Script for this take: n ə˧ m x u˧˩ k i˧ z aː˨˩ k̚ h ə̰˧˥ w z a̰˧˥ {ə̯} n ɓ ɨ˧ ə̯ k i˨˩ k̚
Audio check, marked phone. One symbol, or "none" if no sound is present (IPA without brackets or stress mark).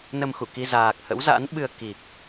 none